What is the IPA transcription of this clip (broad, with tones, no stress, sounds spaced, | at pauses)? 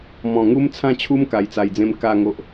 m ɔ̃˨˩ ŋ u˦ m t͡sʰ ã˥˧ t͡ɕʰ u˦ m k a˧ j t͡s a˧ j d͡z ẽ˥˧ m k a˥˧ ŋ o˦ ʔ